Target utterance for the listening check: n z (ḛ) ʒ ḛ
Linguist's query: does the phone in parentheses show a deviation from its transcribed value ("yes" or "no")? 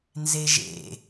yes